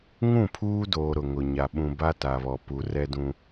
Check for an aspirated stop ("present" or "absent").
present